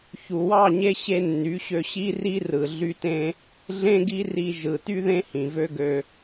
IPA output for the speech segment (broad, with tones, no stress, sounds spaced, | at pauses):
ç u˨ w ɑ˦˨ ɲ e˧ ɕ e˦ nː y˨˦ ɕ ø˧ ɕ i˦ r i˦ r ɯ˨ ɮ y˧ t ẽ˧ | ɮ ẽ˦ ɡ i˦ r i˧ ʒ ɯ˨ t y˦ ð ẽ˦ h ĩ˨ v ø˦ ɡ ø˧